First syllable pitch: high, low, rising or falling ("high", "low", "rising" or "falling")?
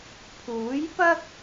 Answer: rising